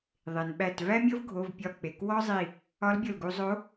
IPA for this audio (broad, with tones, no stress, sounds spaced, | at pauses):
ðˤ e˩ n ɓ æ˧˩ t v æ˥ mʲ ɤ˥ v ɡʱ o˩˧˩ v pʲ ɒ˧˩ k͡p e˩˧˩ k w ɔ˥ zˤ i˧˩ | ɒ˧˥ l bʲ ɤ˧˩ l ɡ u˧ zˤ o˧˥